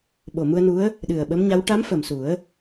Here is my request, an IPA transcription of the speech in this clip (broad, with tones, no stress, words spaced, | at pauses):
ɓo˨˩mu˧ə̯nu˧˥ə̯ | ɗɨ˨˩ə̯ɓə˧˥mɲa˧˥w ʈa˧˥m fə˨˩msu˨˩˦ə̯